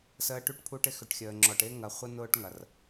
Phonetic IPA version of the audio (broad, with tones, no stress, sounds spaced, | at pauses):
s əː˨˦ ʈ y˨ ʈ pʰ u˦ ʈ ɪ˦ x ʏ˨ ʈ xʲ əː˨ ŋ͡ǁ ɔ˨ ʈ ɪː˦ ŋ ɐ˨ χʷ ə˦ n ʊː˦ ʈ ŋ ɐ˨ r